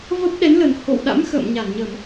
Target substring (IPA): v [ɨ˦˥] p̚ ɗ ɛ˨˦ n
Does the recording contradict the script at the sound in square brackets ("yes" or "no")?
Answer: yes